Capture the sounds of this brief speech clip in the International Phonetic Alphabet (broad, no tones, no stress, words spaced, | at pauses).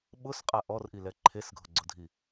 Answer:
ɓʊsqʼa ʔɔrʔilɛ ǃʰesɡʱʊɡ͡ǀʊdʱi